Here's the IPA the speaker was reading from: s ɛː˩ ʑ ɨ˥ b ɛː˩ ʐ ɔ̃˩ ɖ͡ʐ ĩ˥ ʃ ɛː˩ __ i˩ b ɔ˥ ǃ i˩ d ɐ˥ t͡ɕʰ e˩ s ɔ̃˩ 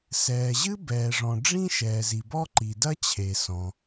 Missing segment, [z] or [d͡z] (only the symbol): z